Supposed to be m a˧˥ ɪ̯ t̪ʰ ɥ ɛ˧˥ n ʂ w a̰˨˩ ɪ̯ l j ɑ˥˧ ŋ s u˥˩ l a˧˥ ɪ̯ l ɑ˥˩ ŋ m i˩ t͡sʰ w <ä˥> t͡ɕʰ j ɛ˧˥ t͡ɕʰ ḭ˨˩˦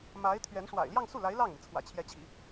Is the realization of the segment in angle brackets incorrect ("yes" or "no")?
yes